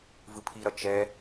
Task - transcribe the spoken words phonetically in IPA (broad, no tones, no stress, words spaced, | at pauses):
vɯpʰiɾʌ t͡ʃɛ